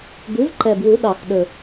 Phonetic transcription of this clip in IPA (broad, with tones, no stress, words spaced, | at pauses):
bʉ˩˥vǃɛ˨˩bwu˨˩˦ ɗɑ˨˩xɗɵ˨˩